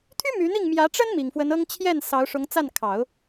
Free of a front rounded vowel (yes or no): no